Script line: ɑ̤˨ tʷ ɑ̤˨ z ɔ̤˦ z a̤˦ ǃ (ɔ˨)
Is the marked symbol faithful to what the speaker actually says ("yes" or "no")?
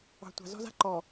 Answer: yes